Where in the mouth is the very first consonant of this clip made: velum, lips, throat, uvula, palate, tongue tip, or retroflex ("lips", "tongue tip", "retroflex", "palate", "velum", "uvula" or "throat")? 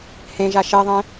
throat